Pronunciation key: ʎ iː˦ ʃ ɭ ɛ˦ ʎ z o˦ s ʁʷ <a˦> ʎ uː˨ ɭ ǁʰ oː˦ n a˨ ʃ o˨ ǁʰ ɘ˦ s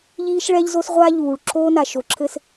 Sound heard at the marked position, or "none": a˦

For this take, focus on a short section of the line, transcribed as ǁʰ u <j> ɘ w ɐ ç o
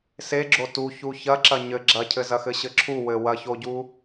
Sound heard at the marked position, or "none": w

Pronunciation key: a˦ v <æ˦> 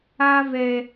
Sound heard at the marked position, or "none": ɛ˦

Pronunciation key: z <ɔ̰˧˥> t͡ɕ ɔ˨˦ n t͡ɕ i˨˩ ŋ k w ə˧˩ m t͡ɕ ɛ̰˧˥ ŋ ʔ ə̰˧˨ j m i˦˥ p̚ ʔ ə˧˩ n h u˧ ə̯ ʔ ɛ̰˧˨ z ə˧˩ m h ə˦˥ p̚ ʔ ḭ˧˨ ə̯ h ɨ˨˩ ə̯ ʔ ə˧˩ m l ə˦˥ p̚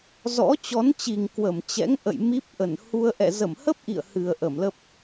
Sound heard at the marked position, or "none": ɔ̰˧˥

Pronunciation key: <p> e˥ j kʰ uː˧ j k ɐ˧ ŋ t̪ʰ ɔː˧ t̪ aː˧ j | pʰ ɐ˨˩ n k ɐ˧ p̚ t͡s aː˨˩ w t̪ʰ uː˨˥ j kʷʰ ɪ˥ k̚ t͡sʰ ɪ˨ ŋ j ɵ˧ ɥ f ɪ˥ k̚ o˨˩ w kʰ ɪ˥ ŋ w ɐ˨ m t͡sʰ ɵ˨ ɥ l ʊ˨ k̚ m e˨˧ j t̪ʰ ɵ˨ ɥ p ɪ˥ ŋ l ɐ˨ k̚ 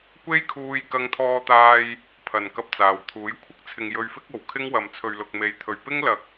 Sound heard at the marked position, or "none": kʷ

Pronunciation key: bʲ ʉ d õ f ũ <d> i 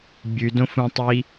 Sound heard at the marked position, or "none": tˤ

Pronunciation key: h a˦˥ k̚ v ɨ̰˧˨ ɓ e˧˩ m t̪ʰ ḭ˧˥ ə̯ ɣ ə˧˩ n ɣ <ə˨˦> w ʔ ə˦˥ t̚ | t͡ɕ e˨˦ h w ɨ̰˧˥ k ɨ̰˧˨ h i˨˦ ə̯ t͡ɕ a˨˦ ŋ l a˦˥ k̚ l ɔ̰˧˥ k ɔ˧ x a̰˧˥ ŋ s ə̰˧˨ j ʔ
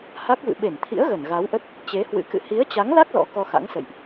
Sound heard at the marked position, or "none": a˨˦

